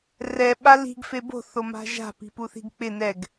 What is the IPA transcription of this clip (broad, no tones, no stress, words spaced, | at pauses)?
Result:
rɛ ɓali̤ɡ febo̤ θoma̤ʒa̤ pi̤puθi̤ɡk͡pɪ nɛɡ